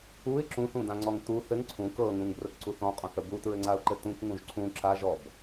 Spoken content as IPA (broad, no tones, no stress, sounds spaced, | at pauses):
u ɪ̯ ǁ ũ θ ũ d ã ŋ͡ǀ ɔ ŋ t u θ ɘ ŋ ǀʰ ũ k ɤ ŋ ũ ŋ b r ə k ǀ u θ ɔ̃ qʼ ɔ̃ θ ə b u t ɹ ɘ ŋ͡ǀ a ʊ̯ ǃ ɘ t ũ k ŋ ũ ʒ ǀʰ ũ ǁ a ʒ ɔ b